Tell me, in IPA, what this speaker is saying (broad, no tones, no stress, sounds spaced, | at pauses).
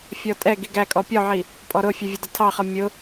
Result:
fʲ ɔ tʼ ɛ ɡ i ɡ æ kʼ ɔ pʲ ɔ ʕ i | pʼ ɔ ɾ ʊ fʲ ɛ vʲ ə d ə tʰ ɑ χ ʌ mʲ ʊ